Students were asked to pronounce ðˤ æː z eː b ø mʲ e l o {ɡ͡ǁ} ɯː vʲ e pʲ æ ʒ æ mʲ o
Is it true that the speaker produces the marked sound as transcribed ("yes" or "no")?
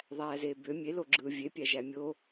yes